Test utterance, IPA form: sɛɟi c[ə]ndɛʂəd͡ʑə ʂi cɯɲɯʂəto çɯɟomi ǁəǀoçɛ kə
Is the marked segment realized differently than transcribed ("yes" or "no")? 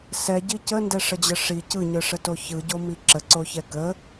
no